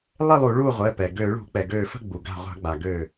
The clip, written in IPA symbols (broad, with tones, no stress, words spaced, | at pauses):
lˠɪ˥˨ lˠu˧˩˧ɭuː˥˨ʁʷɛ˩˧˩pɛ˩ ɡøː˧˩˧ ɭṳ˧˩˧k͡pɛ˩ɡøː˧˩fə̤˥˨ ɡ͡bu˩ ɡa̤˧˩ʁʷa̤˧˩˧ɡ͡ba˩ ɡøː˧˩